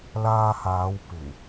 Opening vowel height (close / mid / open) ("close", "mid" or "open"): open